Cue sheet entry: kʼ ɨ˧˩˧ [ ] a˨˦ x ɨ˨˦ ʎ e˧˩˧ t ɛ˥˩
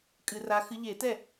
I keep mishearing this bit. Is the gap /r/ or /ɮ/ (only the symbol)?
r